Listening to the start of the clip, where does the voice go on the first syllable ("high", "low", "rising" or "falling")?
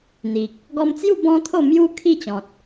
low